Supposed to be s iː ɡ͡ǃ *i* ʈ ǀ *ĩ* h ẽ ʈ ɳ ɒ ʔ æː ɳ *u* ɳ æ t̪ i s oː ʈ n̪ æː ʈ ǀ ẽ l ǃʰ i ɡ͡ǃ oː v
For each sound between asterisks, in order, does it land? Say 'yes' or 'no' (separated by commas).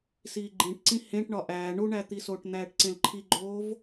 no, yes, yes